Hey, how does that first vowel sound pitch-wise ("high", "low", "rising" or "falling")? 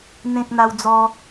high